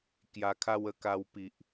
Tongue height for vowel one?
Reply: low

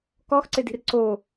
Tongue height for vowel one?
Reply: mid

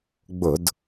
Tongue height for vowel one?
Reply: high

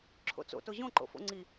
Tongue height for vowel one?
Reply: mid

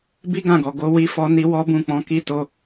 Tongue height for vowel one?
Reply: high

